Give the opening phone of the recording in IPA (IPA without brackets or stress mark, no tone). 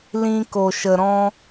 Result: l